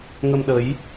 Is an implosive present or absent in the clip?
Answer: present